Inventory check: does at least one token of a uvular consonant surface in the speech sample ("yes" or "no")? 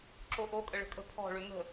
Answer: no